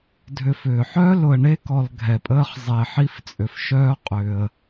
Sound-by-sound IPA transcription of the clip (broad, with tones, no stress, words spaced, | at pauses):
dʱʏ˨fʏː˩ħœː˥ lʊ˨ə̯ɳe˥kɔ˨l ɡʱɛ˩pʼəː˦χ zˤe˩ ħi˦ft͡sʼʏ˩fʃœː˦ qʼʏː˩ə̯